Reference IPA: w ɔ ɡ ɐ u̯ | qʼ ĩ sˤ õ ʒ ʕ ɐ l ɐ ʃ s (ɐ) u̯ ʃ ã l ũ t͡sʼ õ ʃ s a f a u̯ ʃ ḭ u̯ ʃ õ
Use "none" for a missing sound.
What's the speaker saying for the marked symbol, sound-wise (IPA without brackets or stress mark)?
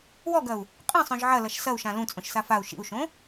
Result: ɐ